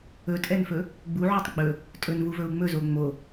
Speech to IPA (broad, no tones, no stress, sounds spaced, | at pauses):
ɵ tʼ ɛ n f ɵ | ɡ͡b u ʕ u tˤ ɡ͡b ɵ | tʼ ɵ n v u v ɵ u̯ ŋ͡m ɵ z o ŋ͡m o